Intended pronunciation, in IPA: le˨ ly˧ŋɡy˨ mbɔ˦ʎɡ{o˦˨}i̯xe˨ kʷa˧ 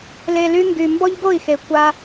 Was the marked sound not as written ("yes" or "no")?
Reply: no